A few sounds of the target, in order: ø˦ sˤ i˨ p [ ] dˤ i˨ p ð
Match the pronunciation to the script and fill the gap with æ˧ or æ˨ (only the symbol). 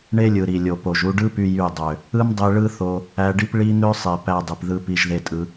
æ˧